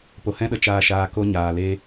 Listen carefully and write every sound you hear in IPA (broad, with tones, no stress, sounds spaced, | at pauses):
p o˨ h ɛ̃˦ ɗ ə˨ t͡ʃ aː˧ ʃ aː˧ k o˦ ɲ aː˨ l e˦